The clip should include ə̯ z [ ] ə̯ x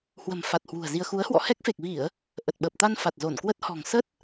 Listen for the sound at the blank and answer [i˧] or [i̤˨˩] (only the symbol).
i˧